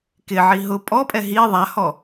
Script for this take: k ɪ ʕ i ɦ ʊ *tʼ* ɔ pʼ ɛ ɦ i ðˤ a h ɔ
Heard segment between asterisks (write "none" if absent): pʼ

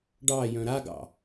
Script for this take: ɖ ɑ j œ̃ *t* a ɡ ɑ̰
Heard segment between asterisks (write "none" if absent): ɾ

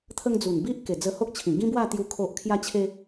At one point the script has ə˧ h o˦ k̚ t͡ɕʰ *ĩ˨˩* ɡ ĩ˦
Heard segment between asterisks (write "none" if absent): ĩ˨˩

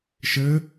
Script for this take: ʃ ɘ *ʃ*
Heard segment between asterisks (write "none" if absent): none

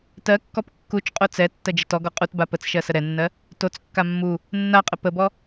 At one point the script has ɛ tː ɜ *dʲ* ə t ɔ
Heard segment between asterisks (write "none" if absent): d͡ʒ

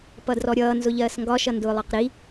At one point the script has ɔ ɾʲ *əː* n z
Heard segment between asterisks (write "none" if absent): ʌː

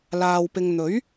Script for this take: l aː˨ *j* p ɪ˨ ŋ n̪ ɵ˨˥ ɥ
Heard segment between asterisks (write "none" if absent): w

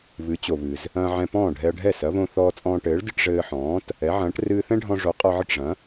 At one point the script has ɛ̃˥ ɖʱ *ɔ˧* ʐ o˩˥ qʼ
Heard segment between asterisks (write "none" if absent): ɔ̃˧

